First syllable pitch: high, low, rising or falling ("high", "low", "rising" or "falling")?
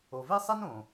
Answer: low